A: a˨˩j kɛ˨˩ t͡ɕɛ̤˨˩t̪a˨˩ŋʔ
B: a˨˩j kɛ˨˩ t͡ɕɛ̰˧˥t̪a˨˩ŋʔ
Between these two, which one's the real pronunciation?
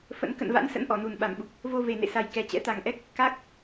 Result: B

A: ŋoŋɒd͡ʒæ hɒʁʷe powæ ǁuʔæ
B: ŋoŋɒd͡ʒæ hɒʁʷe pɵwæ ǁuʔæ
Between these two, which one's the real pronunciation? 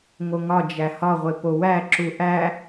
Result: A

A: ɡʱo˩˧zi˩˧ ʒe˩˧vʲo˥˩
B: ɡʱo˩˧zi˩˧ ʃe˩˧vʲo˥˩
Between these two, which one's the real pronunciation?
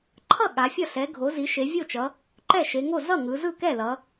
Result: B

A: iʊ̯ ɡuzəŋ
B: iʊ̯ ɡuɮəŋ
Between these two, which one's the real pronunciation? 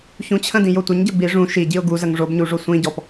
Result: A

